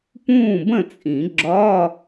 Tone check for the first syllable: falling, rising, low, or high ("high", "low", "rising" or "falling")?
falling